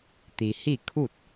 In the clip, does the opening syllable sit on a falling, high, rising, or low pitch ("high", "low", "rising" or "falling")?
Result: low